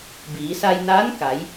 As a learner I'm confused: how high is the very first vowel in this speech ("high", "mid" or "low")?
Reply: high